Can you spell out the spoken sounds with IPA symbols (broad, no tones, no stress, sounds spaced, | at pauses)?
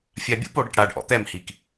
fʲ a bʲ ṵ p o ɽ e ʈ ɽ a ɖ ʔ ɔ̰ t̪ ɛ m h i k